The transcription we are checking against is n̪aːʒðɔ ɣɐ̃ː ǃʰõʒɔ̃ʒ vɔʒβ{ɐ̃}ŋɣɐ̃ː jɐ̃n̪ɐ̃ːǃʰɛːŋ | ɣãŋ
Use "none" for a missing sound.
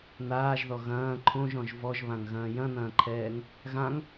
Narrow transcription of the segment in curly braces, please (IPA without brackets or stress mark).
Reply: ã